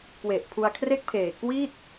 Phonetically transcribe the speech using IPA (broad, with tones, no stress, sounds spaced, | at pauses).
k w e˨˩ ʔ pʰ u˧ a̯ kʰ r e˥˩ k̚ pʰ eː˨˩ k w i˥˩ t̚